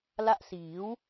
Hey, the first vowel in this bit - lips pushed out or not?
no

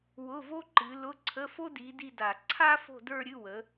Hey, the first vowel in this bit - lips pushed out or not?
yes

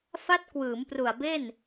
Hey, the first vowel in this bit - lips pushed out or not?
no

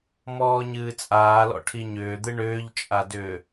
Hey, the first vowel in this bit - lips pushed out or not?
yes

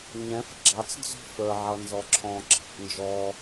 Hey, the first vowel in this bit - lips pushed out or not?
no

